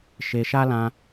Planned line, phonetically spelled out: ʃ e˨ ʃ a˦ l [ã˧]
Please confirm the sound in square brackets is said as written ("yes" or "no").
yes